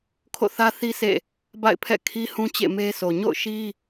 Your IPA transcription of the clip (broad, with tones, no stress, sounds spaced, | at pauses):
kʰ o̰˦˨ θ ä˦ θ i˦ sʰ ḛ˦˨ | b a̰˦˨ ɪ̯ pʰ ɛ̰˦˨ kʰ i˦ h ũ˦ t͡ɕ ḛ˦˨ m e˦ s o˨ ɲ o̰˦˨ ʊ̯ ʃ i˦